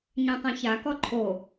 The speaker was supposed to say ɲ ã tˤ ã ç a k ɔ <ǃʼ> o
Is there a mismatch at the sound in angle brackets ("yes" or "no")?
yes